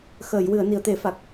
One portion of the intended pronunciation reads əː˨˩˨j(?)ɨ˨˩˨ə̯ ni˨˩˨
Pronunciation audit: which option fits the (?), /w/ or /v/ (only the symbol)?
w